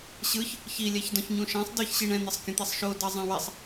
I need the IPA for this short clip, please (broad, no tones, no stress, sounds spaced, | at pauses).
ɕ ɯ ç | ç i lʲ ɛ ç d ɔ̃ ç ɲ ũ ʃ ɛ̃ sˤ d ɯ ç ɕ i ɳ ɛ̃ n̪ e sˤ kʲ ũ t̪ i sˤ ʃ o d ɤ zˤ ɛ̃ w e sˤ